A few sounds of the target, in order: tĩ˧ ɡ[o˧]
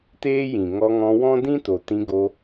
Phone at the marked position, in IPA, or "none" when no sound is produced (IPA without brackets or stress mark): o˧